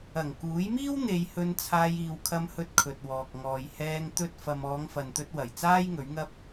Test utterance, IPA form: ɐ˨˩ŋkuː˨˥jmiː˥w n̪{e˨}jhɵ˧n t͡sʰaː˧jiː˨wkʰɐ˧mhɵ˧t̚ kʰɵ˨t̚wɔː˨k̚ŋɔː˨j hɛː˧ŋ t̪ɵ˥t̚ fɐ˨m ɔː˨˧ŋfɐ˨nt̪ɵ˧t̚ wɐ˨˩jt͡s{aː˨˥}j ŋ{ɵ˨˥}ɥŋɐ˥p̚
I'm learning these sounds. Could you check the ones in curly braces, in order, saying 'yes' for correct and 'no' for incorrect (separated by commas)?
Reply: no, no, yes